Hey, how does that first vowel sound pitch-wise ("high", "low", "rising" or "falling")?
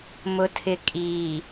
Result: low